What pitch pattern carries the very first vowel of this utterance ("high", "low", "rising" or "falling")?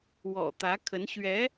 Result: low